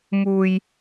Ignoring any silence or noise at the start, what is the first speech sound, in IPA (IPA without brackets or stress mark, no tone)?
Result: m